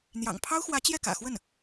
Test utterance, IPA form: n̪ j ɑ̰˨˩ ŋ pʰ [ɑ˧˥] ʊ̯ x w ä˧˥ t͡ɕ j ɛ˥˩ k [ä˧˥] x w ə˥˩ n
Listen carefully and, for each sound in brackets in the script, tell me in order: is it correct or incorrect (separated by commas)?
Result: incorrect, incorrect